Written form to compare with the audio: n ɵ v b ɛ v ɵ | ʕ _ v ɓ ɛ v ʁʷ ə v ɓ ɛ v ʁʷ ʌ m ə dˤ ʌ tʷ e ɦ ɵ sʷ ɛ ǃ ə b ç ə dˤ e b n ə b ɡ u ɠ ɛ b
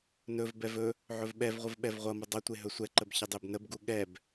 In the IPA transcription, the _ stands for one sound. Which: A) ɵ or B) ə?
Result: A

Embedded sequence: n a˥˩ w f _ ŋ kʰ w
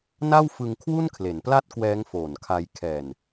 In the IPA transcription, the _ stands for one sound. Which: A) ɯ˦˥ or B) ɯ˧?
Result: B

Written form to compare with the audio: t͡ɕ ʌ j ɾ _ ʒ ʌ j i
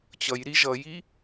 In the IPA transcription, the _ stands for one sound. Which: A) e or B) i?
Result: B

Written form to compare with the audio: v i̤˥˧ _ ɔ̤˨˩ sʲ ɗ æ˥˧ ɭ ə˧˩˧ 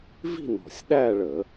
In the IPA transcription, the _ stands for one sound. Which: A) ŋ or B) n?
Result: B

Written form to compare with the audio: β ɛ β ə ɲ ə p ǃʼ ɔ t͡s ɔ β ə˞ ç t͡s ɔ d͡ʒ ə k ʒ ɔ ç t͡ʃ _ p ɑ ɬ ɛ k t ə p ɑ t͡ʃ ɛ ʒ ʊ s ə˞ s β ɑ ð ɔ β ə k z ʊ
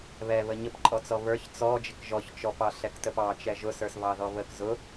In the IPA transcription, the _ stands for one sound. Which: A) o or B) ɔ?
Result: B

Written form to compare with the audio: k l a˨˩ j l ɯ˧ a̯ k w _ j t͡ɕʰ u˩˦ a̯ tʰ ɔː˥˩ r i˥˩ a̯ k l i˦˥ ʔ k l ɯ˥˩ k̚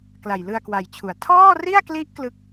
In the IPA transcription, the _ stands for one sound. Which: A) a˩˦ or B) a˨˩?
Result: B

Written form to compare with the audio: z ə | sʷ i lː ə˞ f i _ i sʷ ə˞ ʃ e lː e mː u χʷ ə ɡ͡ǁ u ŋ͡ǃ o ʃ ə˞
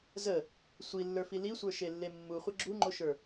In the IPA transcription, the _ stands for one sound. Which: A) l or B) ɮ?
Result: A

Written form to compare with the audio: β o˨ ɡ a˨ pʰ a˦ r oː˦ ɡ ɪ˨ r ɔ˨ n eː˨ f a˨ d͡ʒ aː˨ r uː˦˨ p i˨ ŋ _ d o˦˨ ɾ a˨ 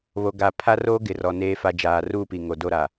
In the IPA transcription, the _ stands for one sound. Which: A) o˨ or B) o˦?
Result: A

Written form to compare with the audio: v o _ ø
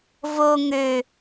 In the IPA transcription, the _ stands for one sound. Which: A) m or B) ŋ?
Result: B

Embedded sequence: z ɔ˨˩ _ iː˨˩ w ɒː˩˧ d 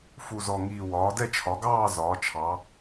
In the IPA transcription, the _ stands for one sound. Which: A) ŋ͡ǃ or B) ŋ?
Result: B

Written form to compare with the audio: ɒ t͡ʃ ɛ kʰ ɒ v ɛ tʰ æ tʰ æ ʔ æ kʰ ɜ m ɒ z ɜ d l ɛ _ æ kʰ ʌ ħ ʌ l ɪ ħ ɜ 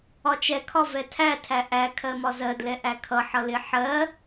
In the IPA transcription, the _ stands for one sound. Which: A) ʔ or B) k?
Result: A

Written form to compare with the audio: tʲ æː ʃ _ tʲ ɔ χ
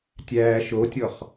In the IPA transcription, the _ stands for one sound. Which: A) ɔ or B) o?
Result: B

